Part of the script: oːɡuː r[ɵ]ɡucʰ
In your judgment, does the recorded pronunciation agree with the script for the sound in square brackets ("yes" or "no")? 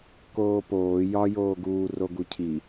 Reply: no